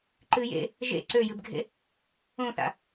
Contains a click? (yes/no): yes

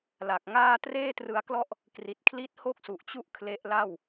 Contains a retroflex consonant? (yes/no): no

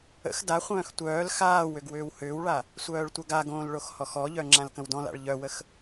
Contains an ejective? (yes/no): no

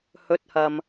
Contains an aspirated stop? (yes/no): no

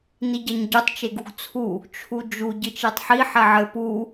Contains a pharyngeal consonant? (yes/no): yes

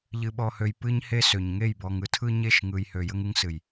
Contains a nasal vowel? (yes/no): no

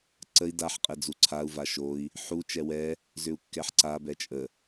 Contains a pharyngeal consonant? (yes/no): yes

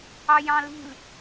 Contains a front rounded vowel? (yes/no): no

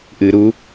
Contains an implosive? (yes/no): no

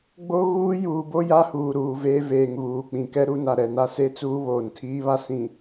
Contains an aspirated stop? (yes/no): yes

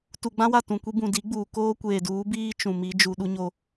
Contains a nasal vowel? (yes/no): yes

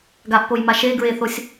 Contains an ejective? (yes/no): no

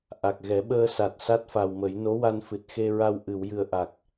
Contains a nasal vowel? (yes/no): no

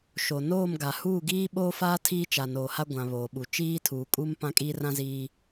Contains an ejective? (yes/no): yes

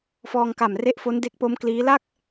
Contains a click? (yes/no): no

